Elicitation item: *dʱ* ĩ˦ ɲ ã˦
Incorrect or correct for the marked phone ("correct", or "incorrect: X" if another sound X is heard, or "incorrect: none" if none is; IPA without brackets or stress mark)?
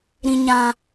incorrect: ɾ